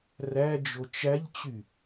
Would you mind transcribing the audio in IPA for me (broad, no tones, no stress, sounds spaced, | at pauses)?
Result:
r æ d͡ʒ o t͡ʃ æ ʎ t͡ɕ y